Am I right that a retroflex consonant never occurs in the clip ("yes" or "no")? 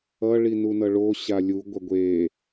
no